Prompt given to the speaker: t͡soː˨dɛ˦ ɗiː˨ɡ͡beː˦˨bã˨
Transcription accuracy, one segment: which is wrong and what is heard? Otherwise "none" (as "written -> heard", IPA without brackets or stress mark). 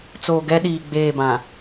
d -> ɡ